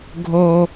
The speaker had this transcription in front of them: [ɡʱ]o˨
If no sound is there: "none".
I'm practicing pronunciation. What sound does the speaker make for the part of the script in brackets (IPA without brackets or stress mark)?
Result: ɡʱ